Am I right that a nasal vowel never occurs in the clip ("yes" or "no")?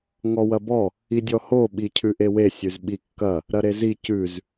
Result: yes